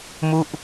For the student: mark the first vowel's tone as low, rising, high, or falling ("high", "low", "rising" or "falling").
falling